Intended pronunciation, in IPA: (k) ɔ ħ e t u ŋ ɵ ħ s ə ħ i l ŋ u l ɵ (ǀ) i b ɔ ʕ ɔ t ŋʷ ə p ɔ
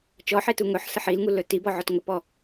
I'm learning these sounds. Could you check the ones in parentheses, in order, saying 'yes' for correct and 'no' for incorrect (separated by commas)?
no, no